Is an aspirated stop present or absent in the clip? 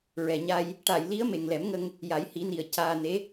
absent